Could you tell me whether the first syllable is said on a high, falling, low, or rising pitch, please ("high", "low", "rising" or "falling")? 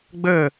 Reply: falling